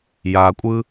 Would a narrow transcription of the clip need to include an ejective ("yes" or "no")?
yes